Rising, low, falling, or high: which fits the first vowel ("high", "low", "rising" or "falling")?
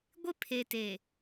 high